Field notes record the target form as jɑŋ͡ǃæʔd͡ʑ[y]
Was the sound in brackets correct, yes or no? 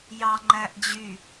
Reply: yes